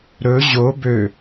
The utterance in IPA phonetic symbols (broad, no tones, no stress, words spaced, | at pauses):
ɾɵ ʑo bø